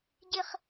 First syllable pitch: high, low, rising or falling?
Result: high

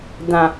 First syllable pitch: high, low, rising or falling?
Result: low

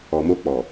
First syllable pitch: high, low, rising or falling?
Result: low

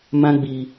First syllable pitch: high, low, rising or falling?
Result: high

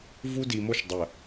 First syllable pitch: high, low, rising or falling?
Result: high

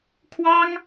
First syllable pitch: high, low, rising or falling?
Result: high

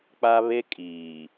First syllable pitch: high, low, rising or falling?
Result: high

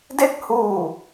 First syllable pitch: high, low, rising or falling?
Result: falling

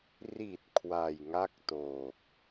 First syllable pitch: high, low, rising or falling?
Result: low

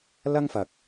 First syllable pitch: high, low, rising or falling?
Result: high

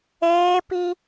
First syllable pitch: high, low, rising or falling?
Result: high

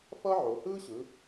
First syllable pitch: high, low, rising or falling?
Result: high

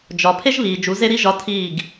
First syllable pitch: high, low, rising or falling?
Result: low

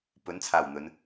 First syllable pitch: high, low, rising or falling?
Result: rising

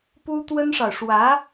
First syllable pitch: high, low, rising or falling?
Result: high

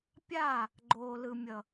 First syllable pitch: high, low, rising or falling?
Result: falling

